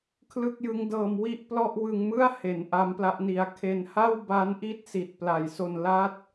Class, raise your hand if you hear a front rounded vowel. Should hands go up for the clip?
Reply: no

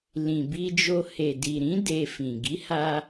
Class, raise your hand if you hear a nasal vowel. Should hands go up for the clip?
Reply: yes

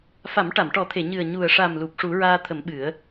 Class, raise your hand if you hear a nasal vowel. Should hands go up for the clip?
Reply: no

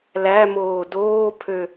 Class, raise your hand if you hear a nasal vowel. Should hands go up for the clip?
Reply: no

